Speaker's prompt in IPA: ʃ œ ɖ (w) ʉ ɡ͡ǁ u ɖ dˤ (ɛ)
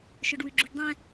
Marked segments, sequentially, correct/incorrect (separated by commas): correct, incorrect